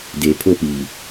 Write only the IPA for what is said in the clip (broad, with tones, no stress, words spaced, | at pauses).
deː˨pʰo˦˨piː˨